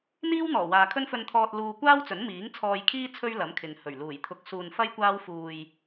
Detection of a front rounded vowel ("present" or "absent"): absent